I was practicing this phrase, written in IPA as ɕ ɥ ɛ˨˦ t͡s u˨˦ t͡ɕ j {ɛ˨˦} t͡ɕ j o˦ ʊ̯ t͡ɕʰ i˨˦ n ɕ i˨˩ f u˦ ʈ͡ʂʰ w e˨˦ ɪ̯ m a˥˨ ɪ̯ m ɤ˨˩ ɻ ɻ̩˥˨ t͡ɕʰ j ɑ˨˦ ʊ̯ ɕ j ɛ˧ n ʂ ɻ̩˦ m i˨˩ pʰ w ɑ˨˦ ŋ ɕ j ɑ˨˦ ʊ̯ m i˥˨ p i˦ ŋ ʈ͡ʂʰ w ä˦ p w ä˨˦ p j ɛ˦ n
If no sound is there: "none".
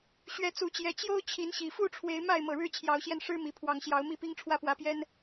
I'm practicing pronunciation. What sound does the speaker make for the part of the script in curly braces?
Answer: ɛ˨˦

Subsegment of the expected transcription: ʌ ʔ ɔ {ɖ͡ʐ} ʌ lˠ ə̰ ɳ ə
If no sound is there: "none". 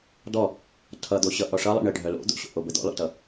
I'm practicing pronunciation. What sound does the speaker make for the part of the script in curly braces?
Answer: ʂ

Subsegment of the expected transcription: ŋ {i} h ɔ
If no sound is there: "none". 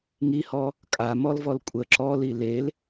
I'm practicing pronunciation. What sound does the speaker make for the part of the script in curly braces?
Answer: i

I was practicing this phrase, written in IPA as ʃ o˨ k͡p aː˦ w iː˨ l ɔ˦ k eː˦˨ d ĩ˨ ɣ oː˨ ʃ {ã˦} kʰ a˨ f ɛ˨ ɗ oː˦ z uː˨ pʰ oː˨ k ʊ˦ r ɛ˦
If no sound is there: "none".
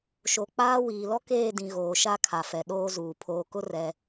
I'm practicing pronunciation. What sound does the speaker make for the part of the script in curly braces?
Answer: a˦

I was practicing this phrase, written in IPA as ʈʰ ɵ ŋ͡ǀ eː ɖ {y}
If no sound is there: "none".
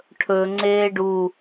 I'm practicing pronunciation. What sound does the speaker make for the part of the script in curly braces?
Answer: u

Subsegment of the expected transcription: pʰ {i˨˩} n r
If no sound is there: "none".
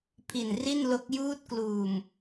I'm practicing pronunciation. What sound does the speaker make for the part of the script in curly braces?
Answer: i˨˩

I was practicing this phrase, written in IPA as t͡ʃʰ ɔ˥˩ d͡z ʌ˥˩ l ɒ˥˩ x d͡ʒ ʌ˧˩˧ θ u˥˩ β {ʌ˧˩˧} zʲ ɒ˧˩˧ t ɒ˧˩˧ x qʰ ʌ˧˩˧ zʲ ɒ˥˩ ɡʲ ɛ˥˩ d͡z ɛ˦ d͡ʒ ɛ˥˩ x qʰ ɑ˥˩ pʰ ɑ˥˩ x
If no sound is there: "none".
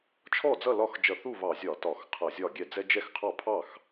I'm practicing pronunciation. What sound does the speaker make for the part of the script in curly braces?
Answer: ɑ˧˩˧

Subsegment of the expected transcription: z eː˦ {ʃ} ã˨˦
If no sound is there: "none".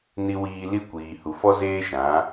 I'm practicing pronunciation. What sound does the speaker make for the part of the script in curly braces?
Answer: ʃ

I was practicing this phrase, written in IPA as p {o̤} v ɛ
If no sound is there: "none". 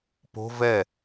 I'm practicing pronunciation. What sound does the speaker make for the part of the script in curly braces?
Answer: o̤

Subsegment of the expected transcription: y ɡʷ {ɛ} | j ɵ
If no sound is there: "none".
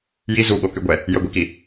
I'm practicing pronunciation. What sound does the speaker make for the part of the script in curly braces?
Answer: ɛ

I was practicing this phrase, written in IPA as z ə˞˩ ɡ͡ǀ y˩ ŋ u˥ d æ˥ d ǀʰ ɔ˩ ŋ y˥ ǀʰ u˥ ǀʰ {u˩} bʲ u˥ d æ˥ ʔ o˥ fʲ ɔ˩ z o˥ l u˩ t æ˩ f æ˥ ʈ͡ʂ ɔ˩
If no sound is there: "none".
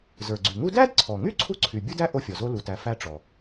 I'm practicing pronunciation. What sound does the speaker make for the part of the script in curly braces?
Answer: y˩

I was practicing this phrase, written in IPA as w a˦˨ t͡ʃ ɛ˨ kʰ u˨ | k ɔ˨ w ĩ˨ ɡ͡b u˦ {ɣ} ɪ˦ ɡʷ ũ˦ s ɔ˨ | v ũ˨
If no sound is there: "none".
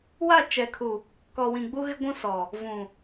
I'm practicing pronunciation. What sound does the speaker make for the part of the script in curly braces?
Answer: ɣ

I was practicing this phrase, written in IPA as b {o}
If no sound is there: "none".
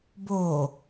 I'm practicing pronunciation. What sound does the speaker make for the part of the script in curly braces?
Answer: o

